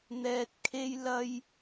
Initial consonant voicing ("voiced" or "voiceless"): voiced